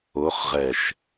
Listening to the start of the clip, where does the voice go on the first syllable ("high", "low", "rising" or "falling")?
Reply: rising